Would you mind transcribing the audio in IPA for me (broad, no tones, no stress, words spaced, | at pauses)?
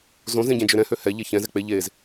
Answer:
zõzẽ ɟẽd͡ʒøɾɛ̃hø hɛ ʎeçɛ̃zɛ k͡pe ʎez